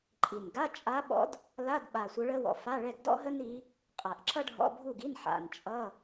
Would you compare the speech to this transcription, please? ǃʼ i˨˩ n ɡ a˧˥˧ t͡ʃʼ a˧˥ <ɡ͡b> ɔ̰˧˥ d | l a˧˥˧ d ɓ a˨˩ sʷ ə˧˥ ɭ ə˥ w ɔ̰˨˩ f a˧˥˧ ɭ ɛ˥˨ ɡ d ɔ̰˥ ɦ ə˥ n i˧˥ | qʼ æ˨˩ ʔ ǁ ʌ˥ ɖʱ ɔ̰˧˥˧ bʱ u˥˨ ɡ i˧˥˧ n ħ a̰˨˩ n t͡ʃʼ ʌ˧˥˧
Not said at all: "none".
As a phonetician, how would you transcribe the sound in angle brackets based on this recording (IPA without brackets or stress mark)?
ɓ